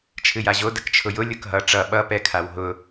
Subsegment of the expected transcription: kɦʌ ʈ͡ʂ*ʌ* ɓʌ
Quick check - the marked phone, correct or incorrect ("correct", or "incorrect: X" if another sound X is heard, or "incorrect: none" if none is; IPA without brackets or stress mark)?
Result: correct